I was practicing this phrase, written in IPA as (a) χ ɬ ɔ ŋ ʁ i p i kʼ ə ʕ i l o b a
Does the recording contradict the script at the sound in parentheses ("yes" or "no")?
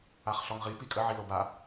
no